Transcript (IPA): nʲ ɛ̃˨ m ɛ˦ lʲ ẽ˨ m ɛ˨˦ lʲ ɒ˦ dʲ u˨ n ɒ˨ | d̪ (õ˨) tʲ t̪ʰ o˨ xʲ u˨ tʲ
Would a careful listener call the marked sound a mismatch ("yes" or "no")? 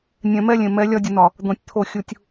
no